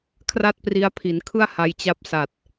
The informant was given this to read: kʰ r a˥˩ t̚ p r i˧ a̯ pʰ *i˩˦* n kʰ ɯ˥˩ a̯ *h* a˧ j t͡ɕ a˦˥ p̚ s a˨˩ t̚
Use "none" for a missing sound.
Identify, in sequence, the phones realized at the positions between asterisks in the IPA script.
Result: i˩˦, h

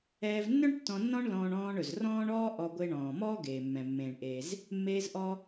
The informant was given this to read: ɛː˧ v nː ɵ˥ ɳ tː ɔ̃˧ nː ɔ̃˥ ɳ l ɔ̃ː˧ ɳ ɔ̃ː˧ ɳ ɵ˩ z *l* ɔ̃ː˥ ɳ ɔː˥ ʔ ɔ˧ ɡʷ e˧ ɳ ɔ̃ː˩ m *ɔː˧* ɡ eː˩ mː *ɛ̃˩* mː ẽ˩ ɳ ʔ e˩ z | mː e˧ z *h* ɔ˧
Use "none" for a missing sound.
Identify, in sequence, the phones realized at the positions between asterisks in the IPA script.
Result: r, ɔː˥, ɛ̃˩, ʔ

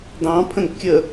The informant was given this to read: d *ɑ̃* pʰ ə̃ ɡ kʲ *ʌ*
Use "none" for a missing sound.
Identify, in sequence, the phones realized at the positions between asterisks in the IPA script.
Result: ɑ̃, ə

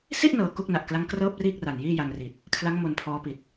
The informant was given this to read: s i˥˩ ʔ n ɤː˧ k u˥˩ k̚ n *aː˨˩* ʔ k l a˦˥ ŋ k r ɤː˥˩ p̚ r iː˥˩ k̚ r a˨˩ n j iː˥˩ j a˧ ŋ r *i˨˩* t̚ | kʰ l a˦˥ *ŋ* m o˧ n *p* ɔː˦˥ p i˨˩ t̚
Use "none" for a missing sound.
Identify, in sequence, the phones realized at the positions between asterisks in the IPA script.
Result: a˨˩, i˨˩, ŋ, pʰ

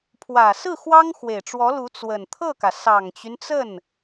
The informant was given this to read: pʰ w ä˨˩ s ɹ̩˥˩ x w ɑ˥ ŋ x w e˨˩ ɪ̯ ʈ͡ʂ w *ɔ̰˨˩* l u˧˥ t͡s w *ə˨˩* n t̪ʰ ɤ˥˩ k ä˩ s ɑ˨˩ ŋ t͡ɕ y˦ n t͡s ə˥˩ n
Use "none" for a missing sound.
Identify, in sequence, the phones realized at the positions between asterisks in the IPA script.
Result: ɔ˧˥, ə˨˩

